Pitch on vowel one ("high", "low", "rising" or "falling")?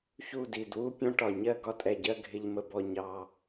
falling